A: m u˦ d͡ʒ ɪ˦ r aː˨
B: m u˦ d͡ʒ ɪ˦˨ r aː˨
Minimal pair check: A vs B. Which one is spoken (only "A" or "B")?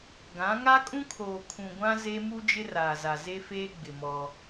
A